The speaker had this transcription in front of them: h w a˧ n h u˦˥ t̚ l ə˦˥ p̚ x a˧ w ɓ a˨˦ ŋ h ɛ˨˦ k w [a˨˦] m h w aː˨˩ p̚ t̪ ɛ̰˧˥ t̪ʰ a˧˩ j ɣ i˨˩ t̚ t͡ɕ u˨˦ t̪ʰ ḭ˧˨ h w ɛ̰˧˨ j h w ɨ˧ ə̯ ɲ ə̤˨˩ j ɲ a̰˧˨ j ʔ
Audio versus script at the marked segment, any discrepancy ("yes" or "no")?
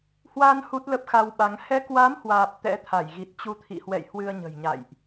no